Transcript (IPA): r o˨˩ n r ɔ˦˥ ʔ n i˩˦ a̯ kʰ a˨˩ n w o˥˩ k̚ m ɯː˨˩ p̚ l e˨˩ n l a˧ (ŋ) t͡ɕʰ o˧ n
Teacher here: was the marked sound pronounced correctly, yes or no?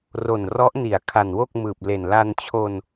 no